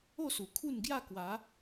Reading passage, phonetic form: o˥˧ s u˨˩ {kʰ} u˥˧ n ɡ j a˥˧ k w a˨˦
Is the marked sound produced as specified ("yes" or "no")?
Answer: yes